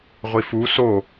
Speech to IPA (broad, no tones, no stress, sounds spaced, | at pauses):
ʁʷ i f u s o